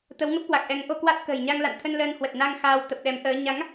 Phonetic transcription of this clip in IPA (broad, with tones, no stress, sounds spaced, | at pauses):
t̪ ə˨˦ w ŋ ə˦˥ p̚ k w a˨˩ k̚ ʔ ɛ˨˦ ŋ ʔ o˧ k w a˦˥ t̚ k ə̤ː˨˩ j ɲ a˧ ŋ l a̰˧˨ n t̪ʰ ə˧ n l əː˧ n h w ə˨˩ t̚ n a˧ ŋ x aː˧ w t̪ ə˨˩ p̚ ɗ ɛ˨˦ m ʔ əː˨˦ ɲ a˨˦ ŋ